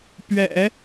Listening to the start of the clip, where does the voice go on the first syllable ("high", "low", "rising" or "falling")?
low